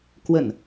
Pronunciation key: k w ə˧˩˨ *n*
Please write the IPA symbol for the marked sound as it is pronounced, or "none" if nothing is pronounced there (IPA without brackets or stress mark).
n